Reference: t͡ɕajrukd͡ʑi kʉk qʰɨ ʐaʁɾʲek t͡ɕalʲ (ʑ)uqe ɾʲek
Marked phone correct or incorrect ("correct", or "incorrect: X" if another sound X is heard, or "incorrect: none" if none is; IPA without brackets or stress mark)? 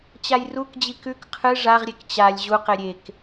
correct